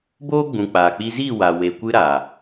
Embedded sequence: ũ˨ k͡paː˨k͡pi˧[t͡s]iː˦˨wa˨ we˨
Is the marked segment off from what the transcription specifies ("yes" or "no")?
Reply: yes